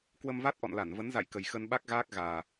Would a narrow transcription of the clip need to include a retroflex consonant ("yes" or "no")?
no